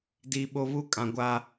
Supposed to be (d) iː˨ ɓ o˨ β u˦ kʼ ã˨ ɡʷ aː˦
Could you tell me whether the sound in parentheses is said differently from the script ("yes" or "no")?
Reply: no